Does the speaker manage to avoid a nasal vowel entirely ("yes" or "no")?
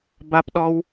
yes